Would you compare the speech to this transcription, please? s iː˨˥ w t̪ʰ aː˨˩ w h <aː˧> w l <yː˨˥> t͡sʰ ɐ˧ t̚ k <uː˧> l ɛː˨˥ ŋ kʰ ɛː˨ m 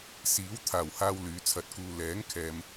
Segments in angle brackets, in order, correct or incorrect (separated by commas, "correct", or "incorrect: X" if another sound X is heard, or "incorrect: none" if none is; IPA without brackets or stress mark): correct, correct, correct